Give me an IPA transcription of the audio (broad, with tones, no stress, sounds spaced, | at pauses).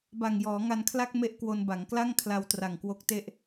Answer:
b a˨˩ ŋ j ɔː˩˦ ŋ a˧ n kʰ l a˥˩ k̚ m e˥˩ ʔ k w o˧ n b a˩˦ ŋ k l a˥˩ ŋ kʰ l a˧ w t r a˨˩ ŋ k w o˦˥ k̚ t e˥˩ ʔ